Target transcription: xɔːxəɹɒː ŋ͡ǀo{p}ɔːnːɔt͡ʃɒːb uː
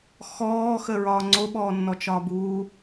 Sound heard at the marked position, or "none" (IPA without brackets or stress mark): ɓ